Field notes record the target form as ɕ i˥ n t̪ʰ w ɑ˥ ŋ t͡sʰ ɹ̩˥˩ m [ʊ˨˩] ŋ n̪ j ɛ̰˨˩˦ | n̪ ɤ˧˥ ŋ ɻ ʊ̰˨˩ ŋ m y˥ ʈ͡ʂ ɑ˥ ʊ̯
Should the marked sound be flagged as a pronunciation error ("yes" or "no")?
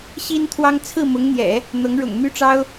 yes